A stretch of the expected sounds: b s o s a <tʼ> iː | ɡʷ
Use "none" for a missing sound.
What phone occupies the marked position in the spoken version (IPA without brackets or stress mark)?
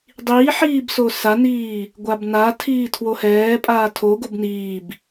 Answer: n